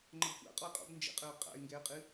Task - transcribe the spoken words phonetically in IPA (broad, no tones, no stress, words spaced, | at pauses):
ŋ͡ǃəbxʷa̰ qʼɔɪ̯qʼɔ̰b nd͡ʒə̰qʼəːʊ̯ qʼa̰ɪ̯ ŋɡɛə̯qʼɨ